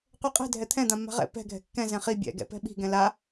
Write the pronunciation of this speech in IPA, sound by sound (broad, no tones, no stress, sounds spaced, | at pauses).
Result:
qʷ ɛ qʼ ɛ̤ dʱ ɛ t̪ʰ ɛ̃ d̪ ã mː a̤ ʁ ɛ̰ p ɛ̤ ɡʱ ɛ̤ kː ɛ̃ z ɛ̃ χ i bʲ ɛ̰ ɡ ɛ̰ p ɛ̤ ɓ i̤ ɡ ɛ̃ l a